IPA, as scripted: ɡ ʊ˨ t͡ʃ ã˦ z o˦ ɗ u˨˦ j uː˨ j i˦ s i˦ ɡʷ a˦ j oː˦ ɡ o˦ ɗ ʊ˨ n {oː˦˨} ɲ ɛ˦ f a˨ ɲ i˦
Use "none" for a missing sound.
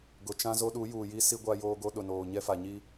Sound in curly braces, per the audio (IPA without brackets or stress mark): oː˨